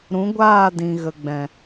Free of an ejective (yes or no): yes